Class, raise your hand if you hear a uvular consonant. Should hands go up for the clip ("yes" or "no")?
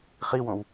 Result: yes